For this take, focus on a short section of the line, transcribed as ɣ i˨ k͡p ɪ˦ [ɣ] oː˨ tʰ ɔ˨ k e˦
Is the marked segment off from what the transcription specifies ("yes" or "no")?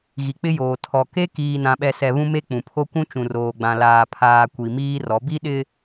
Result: yes